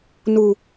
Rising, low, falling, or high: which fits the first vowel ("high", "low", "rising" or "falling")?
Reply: low